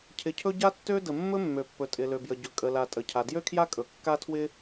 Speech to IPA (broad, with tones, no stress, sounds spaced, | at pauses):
cʰ ɪ˩ cʰ ɵ˥ ɟ a˥ tː ø˥ d ə˩ mː ɵ˥ mː ø˩ pː ɵ˩ tʼ ɪ˩ l ø˩ b j ə˩ ɟ ɵ˩ kʼ ə˩ l a˩ tʼ ə˩ cʰ a˩ d j ø˥ kʰ j a˥ kʼ ɵ˩ kː a˥ tʰ w ɪ˥